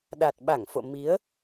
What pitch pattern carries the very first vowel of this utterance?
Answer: low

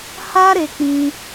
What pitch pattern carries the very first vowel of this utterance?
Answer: high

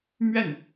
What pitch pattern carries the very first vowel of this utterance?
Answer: falling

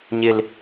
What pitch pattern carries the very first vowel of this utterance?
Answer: high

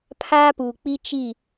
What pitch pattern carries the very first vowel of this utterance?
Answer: high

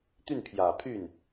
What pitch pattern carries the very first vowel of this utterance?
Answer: falling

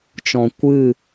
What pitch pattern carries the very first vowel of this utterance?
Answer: low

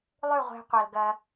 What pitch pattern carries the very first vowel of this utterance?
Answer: falling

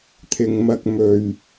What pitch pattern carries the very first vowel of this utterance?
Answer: low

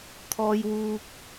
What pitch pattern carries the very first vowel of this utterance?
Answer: high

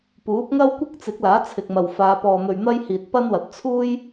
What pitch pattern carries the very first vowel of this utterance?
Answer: rising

